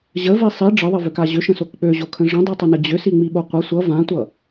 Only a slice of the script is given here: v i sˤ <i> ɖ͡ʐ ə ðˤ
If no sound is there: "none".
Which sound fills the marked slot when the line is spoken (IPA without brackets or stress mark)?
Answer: i